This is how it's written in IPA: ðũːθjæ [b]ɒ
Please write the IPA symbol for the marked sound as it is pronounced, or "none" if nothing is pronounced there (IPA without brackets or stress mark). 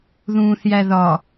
ð